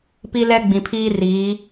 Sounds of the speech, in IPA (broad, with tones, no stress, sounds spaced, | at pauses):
p i˦ l ɛ˦ ɡ͡b ĩ˨ pʰ iː˦ r iː˨˦